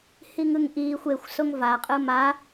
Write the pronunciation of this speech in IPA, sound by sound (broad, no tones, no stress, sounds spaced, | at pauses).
h i ŋ ɯ ŋ ʔ iː xʷ e xʷ s o ŋ v a qʼ ɯ m a